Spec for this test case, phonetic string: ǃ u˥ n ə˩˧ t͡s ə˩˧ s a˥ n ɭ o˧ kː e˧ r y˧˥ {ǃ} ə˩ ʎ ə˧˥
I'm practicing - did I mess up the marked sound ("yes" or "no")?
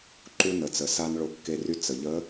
yes